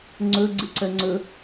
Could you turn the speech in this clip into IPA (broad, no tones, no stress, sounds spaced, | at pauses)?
ŋ͡ǀ ɵ ɡ͡ǀ ɨ ǀ ɜ ŋ͡ǀ ɵ